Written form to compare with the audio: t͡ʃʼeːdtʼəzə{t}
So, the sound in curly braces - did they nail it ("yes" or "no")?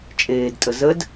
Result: no